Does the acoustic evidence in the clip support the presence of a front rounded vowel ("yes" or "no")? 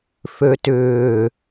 yes